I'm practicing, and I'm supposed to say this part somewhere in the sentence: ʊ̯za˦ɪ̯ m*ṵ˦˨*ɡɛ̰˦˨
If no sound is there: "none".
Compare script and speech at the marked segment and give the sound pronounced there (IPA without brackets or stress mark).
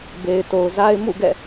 ṵ˦˨